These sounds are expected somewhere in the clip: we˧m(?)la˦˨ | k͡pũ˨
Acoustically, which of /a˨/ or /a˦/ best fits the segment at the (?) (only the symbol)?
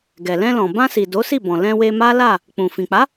a˦